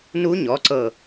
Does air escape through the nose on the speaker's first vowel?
no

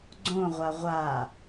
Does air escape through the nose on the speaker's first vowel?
yes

